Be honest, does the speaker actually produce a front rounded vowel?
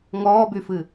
yes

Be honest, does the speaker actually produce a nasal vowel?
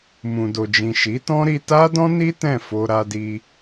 yes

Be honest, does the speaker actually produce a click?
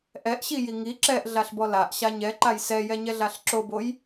yes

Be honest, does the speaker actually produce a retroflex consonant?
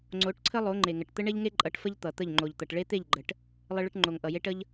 yes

